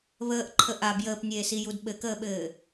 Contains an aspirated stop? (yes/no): yes